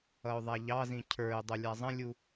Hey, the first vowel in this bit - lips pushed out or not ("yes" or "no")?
no